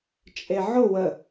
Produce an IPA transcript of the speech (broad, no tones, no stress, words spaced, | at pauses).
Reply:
t͡ʃʼeʕʊ wə